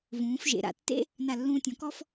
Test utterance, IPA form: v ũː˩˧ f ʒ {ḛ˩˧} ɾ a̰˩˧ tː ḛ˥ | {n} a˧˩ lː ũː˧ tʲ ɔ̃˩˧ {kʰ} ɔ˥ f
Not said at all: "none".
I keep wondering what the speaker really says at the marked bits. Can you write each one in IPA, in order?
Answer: ḛ˩˧, n, k

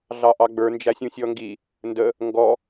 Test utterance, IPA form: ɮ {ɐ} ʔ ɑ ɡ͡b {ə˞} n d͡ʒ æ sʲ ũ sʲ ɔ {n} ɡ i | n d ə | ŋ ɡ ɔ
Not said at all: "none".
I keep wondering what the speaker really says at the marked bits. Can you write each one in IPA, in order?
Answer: ɑ, ə˞, ŋ

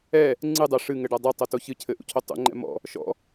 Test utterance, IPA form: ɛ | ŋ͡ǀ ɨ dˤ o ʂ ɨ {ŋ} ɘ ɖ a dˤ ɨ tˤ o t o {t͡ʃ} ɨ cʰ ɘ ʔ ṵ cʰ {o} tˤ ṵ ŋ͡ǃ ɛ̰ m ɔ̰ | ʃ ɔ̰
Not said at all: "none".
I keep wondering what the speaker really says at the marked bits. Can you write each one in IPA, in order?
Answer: ŋ, ç, o

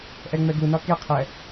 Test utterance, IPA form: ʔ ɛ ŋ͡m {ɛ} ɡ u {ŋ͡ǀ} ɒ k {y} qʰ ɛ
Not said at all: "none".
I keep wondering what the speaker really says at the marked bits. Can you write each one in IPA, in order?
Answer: ɛ, n, e

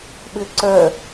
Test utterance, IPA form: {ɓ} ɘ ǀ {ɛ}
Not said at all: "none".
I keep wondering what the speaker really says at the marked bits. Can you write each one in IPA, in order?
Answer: ɓ, œ

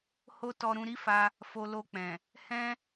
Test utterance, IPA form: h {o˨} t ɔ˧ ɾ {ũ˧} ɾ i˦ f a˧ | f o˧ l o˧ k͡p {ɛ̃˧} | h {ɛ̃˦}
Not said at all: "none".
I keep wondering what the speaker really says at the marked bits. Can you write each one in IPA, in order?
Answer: o˦, ũ˧, ɛ̃˨, ɛ̃˦

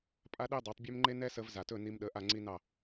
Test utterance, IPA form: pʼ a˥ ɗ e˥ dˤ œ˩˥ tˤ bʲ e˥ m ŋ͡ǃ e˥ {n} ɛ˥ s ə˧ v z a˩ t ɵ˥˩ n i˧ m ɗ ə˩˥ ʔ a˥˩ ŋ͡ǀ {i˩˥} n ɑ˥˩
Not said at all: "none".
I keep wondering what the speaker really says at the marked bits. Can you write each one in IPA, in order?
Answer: n, i˥

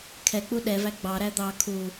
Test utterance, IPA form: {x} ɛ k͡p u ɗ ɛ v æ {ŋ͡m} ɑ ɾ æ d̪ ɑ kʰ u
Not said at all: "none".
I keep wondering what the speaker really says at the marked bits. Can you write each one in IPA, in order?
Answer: kʰ, ɡ͡b

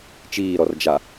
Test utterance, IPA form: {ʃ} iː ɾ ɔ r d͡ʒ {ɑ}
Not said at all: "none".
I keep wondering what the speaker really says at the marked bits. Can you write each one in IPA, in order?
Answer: t͡ʃ, a

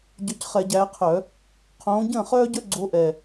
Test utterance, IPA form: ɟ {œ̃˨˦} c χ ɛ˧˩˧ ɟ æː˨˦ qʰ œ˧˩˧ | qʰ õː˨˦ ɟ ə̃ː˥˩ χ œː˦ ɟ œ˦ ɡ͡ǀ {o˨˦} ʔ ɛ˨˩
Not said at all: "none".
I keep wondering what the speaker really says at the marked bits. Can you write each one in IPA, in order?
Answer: œ˨˦, o˨˦

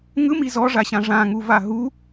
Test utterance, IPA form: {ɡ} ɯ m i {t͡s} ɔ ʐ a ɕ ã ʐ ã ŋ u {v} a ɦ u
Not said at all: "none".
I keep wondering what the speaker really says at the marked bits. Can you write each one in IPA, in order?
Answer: ŋ, z, v

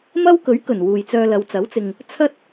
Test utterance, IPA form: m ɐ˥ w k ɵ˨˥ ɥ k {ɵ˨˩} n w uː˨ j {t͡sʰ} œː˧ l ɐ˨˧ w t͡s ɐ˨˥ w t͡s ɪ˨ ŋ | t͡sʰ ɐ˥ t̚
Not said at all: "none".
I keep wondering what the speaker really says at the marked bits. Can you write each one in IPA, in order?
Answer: ɵ˨˩, t͡s

